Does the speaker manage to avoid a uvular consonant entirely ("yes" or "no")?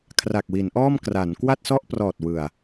yes